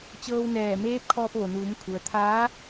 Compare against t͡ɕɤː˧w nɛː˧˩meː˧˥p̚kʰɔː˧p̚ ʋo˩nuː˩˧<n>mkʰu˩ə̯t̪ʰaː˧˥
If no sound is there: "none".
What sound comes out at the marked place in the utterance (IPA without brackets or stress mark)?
none